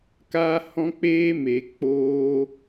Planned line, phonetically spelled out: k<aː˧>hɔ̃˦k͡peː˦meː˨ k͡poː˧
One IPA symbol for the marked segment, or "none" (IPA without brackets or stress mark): aː˦